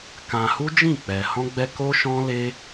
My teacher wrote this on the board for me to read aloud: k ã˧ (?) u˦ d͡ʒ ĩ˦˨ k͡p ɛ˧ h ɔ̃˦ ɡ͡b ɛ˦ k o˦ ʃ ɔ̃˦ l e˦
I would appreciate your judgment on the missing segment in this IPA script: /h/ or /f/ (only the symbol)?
h